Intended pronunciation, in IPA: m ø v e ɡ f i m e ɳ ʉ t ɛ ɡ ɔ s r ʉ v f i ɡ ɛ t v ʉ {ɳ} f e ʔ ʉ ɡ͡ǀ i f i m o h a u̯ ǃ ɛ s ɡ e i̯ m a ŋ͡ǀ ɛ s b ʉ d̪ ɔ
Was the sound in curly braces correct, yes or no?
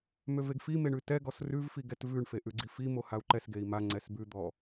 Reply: yes